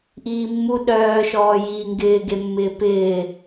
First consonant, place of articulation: glottal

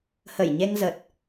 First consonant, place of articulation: glottal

